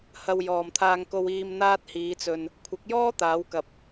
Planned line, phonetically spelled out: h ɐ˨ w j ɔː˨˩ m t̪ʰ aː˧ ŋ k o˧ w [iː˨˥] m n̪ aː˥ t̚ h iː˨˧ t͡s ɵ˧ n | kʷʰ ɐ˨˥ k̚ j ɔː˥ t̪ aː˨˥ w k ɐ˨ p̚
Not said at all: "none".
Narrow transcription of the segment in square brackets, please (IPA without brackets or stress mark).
iː˧